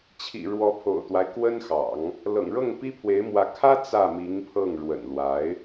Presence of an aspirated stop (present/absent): present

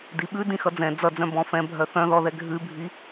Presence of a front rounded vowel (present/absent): present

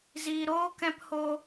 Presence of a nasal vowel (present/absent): present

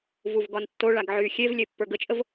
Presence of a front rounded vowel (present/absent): present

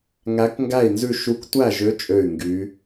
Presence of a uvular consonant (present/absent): absent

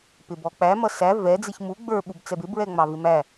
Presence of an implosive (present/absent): present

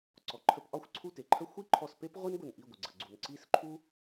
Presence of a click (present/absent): present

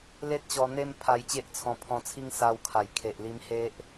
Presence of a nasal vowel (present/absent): present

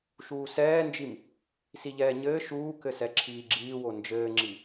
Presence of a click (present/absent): present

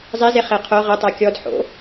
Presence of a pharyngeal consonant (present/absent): present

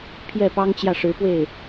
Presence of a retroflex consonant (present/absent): present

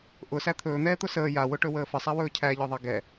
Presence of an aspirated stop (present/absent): present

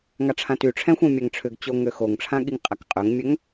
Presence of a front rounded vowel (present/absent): present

